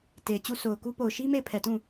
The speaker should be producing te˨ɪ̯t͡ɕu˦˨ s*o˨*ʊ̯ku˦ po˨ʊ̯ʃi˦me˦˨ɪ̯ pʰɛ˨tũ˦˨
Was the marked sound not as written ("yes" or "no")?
no